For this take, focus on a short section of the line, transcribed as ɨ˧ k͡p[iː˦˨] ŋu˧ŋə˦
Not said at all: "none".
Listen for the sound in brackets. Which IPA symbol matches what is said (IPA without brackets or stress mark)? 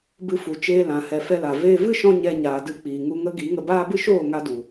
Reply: iː˨